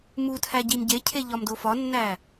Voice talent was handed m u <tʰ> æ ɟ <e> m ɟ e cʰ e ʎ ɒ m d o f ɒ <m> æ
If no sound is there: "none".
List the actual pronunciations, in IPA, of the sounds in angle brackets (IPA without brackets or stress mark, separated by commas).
tʰ, i, nː